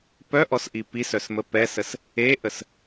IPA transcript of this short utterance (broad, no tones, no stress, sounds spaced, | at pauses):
p œ ʔ ɔ s ʔ i p i s œ s m ə p ɛ s ə s | e ʔ ə s